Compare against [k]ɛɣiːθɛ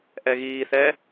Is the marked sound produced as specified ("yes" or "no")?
no